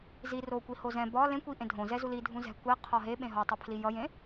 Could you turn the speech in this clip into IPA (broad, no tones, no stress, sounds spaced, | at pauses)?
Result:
z i r o kʷ i h o z ɛ̃ b ɒ l ẽ kʷ i ʔ ẽ dʱ õ z ɛ z u l i dʱ ũ z ɛ̤ kʷ ɛ qʰ ɒ ɦ e ɓ ẽ ɦ ɔ tˤ ɛ pʰ l i j ʌ j ẽ